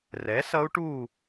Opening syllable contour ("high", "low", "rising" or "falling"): rising